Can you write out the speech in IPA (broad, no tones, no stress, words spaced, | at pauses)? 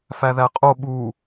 fæðæqʼo ɓu